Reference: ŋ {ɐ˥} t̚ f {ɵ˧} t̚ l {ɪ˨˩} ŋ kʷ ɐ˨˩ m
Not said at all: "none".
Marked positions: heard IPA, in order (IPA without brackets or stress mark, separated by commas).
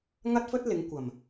ɐ˥, ɵ˥, ɪ˨˧